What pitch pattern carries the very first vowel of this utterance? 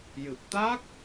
low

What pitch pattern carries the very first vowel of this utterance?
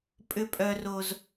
high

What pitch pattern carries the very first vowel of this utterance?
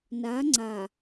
rising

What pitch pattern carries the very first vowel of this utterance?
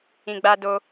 low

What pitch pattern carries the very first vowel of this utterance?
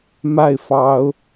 falling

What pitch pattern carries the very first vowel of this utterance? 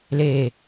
low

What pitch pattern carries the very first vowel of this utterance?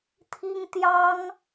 high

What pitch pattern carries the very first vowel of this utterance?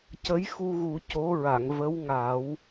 rising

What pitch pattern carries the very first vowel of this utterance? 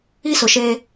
high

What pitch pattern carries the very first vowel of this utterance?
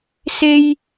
high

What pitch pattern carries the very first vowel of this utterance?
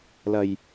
low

